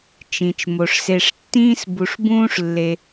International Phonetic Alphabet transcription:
t͡ʃ ĩ˩ t͡ʃ m o˩ ʂ s e˨ ʂ tː ĩː˥ s b u˨ ʂ b ũː˥ ʂ lː e˨

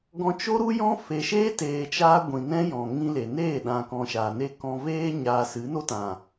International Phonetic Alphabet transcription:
ɡ ɔ̃˧ t͡ʃ o˦ ɾ u˦ j ɔ̃˦ f e˨ ʃ eː˦ t eː˨ t͡ʃ aː˧ ɡʷ ĩ˨ n ɛ̃˦ j ɔ̃˨ ŋ ĩ˧ l e˨ n eː˦˨ ɗ ã˨ k ɔ̃˨ ʃ aː˨ n e˧ k ɔ̃˨ v eː˧ ɲ aː˨ s ɨ˨˦ n o˦ t ã˨

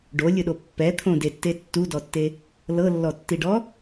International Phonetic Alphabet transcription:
ɖ o lʲ ɯ ɗ o pː ɛ t̪ʰ õ d e tː e tː u d ɔ tː e | l ɤ lː ɔ tː i ɖ ɔ

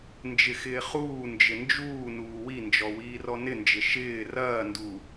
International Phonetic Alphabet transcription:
n d͡ʒ ɪ x ɪː χ uː n d͡ʒ ɪ n d͡ʒ uː n uː w i n d͡ʒ ɔ w iː r ɔ n ɪ n d͡ʒ ɪ ʃ ɪː r ɐː n d u

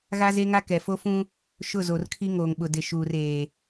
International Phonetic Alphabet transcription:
ɣ a˦ z e˦ ŋ a˦ k ɛ˨ f o˦ f ũ˦ | ʃ ʊ˦˨ z o˨ r kʰ i˦ ŋ oː˨ ŋ ɓ ʊ˨ d ɪ˨ ʃ uː˨ r eː˨

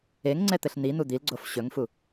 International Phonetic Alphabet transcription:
e ŋ ŋ͡ǀ ɛ t̪ ɘ ɬ n̪ i n̪ u d̪ i l ɡ͡ǀ o f ɕ ɵ ŋ f u

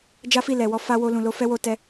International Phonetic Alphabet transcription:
d͡ʒ a˦ f i˦˨ l ɛ˨ w ɔ˧ f a˧ w o˧ l ũ˨ l o˧ f ɛ˦ w o˧ t ɛ˧

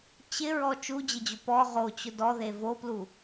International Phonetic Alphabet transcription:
t͡ɕ ɪ ɹ ɔ t͡ʃ u d͡ʑ ɪ d͡ʑ ʊ p ɔ ʁ o t͡ɕ ʊ d ɔ ð e v o p l u

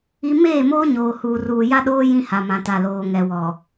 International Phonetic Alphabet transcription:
i˦ m eː˦˨ m oː˦ ɲ oː˨ h uː˨ r uː˨ j a˦ ɗ oː˦ j ĩ˦ h a˨ m ã˨ t a˨ l oː˨ ŋ ɛ˨ w ɔ˨

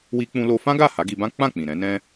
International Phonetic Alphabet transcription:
w i˧ k͡p ũ˧ l o˧ f ã˦ ɡ a˦˨ h a˨˦ ɡ i˧ b ã˦ k͡p ã˦˨ k͡p ĩ˨ ɾ ɛ̃˨˦ n ɛ̃˦

